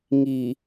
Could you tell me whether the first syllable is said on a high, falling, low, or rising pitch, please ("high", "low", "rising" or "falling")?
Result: low